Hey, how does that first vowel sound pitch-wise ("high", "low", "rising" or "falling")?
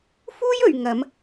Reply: high